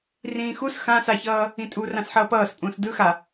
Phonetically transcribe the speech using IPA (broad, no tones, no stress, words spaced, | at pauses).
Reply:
rĩːxus xãsaçʌː | ĩtʼu rãsħʌːpʌːspʼũːs dɯxa